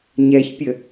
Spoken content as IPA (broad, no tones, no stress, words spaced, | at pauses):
ɲɛçpʲə